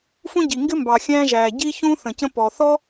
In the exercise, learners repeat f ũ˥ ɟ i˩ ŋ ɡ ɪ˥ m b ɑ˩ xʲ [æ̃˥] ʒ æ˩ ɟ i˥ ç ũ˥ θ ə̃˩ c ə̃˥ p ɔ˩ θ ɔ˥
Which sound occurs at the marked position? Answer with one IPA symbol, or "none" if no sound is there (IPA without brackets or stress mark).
æ̃˥